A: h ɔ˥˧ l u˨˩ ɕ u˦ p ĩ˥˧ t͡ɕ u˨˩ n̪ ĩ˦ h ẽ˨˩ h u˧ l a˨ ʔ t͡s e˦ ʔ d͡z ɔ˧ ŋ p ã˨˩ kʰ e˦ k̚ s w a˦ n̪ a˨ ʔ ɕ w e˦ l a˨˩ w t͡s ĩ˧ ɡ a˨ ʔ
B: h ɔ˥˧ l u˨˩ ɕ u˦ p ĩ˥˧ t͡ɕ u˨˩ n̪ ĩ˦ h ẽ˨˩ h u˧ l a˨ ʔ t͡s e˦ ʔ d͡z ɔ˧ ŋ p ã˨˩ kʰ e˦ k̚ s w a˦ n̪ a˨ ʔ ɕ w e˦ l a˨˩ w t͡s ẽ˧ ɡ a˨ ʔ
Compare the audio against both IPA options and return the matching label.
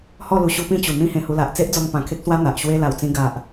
A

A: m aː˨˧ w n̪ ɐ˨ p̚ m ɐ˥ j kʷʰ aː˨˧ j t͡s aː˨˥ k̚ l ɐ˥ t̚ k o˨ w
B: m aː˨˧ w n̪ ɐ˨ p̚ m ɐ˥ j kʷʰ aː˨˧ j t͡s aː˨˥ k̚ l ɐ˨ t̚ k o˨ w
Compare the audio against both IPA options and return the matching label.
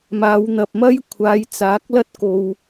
A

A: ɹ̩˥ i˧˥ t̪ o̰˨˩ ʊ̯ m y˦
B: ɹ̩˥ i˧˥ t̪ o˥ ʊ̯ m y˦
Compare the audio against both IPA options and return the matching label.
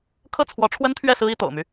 A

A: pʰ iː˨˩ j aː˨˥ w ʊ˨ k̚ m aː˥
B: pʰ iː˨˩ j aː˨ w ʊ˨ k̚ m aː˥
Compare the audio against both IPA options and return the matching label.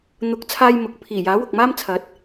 A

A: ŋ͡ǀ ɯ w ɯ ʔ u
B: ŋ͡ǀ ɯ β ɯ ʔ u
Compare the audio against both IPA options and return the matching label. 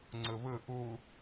B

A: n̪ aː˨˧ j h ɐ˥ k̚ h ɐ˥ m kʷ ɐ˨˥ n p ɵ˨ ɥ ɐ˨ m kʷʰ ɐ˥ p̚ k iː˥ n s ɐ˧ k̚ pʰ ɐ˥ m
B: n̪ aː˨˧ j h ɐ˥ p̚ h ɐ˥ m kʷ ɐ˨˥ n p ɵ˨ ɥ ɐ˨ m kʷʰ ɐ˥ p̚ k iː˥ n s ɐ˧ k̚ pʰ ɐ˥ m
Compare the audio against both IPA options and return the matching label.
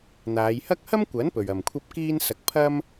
A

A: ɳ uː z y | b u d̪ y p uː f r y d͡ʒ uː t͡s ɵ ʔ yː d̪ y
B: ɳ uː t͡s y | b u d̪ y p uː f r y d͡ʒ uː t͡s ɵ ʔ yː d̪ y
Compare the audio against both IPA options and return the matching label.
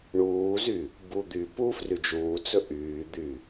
A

